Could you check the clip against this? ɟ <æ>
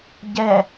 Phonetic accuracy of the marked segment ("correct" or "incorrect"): incorrect